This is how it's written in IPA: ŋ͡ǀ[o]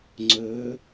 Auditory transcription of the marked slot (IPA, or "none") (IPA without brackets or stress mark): ɵ